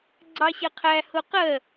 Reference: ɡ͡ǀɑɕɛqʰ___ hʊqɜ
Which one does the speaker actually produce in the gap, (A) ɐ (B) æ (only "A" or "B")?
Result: B